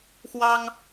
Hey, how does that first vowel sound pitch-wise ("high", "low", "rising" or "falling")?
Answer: high